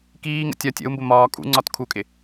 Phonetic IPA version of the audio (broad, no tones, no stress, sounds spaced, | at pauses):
k iː ŋ ə̰ tʲ ɒ tʲ ə̰ u̯ m b ʊ m ɒː kʼ ṵ ŋ͡ǀ ɒ t kʰ u kʼ ɪ